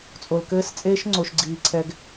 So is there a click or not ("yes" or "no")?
yes